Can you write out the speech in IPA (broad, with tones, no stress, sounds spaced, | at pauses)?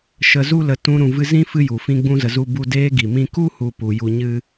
ʃ ə˧ z u˦ l ə˧ t ũ˧ ɾ ũ˨ v ɨ˧ z ĩ˦ f ɨ˦ j u˨ f ĩ˧ ɡ͡b ũ˧ z ə˨ z u˦ b u˦ d eː˧ ɡ i˨ m ĩ˧ k u˦ h u˦ p u˧ j u˧ ɲ ɨ˦